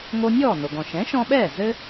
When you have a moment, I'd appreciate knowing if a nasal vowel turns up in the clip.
yes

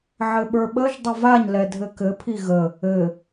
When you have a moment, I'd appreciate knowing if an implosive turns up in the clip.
yes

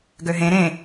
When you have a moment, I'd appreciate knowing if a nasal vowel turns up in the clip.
yes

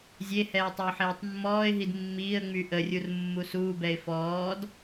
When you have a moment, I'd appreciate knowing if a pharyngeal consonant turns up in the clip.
yes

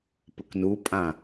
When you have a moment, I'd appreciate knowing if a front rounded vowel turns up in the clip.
no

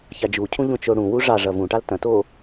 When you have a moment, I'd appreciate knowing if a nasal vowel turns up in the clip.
yes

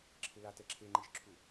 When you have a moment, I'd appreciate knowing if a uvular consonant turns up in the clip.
no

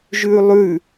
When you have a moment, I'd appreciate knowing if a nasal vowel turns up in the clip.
no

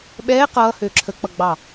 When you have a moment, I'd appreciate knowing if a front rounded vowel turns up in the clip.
yes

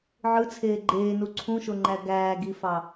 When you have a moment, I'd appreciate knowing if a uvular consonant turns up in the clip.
no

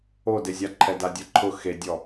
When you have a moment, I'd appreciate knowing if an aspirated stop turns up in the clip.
yes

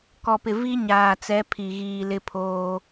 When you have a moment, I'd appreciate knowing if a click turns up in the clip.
no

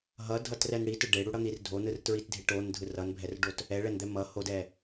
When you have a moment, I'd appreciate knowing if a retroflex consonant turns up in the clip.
yes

